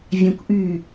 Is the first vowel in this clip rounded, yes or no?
no